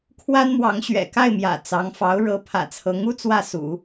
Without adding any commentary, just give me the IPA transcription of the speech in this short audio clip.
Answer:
kʰwa˥nmwɑ˧˥ŋ ɕɥɛ̰˨˩ka˥˩ɪ̯mjä̰˨˩ t͡sɑ˧˥ŋfɑ˧˥ʊ̯ ɻɤ˧˥ pʰä̰˨˩t͡sʰɤ˧˥ŋu˥ t͡swä˥˩sṵ˨˩˦

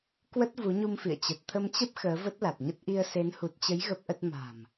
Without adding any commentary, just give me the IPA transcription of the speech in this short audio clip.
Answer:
kwə˦˥t̚ vu˨˦ ɲu˧mfḭ˧˨ə̯ t͡ɕə˨˩t̚t̪ʰə˧mt͡ɕə˦˥p̚ xəː˨˦və˦˥t̚la˨˩t̚ɲə˦˥t̚ ʔi˧ə̯se˨˦n hu˨˩t̚t͡ɕə˨˦j ɣə˦˥p̚ʔə˦˥t̚ ma̤˨˩m

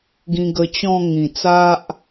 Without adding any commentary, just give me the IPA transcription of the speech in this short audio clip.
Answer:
ɡĩ˧ɡə˧ t͡ɕɔ̃˥˧ ŋĩ˨˩t͡sa˦ʔ

